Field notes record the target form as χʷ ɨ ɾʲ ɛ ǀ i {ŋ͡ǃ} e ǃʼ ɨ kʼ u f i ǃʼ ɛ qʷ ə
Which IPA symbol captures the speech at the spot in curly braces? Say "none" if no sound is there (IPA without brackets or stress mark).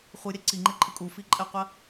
ŋ͡ǃ